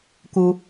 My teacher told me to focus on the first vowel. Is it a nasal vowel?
no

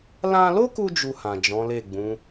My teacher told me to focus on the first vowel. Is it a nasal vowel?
yes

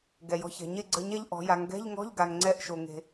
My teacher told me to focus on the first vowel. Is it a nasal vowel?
no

